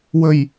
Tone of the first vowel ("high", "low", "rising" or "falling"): low